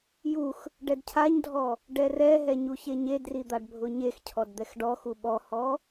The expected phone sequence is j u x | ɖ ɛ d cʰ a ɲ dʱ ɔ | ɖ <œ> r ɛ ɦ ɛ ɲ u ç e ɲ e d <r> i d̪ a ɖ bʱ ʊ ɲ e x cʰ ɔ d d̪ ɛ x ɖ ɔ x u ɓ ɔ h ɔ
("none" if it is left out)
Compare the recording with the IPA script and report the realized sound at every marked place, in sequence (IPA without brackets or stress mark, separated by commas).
ɛ, r